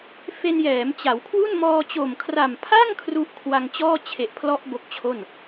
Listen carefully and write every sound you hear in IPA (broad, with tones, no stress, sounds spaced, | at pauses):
f e˧ n j ɛː˩˦ m t͡ɕ a˩˦ w kʰ w u˥˩ n m ɔː˧ t͡ɕ o˨˩ m kʰ r a˨˩ m pʰ a˥˩ ŋ kʰ r u˦˥ ʔ kʰ w a˧ ŋ t͡ɕ ɔː˥˩ t͡ɕʰ e˨˩ ʔ pʰ l ɔ˦˥ ʔ b o˦˥ k̚ t͡ɕʰ o˥˩ n